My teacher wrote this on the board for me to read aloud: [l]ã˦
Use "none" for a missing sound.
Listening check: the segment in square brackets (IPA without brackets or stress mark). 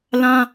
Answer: l